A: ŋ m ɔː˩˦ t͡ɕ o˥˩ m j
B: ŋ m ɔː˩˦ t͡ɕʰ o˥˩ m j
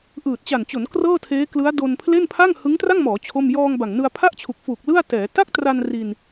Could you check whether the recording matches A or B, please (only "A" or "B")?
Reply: B